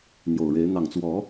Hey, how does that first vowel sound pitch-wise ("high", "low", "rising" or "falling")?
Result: low